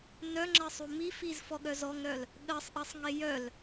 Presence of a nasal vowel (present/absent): absent